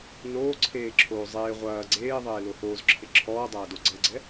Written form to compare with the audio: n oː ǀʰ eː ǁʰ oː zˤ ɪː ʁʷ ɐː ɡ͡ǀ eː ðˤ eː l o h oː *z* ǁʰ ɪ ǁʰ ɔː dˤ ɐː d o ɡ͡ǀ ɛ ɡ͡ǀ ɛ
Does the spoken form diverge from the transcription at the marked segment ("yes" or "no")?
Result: no